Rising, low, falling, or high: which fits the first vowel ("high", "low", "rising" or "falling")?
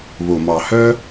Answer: low